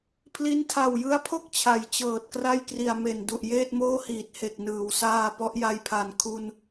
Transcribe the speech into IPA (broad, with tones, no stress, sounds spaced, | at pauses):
pʰ l i˦˥ n tʰ a˨˩ w j ɯ˦˥ a̯ pʰ o˥˩ k̚ t͡ɕʰ a˩˦ j t͡ɕ ɤː˨˩ t̚ k r a˥˩ j k r i˨˩ a̯ m e˨˩ n d u˨˩ ʔ j eː˥˩ t̚ m oː˥˩ h iː˨˩ t̚ h e˨˩ k̚ n ɯː˩˦ w s aː˧ p ɔ˦˥ ʔ j a˧ j pʰ a˨˩ n kʰ u˧ n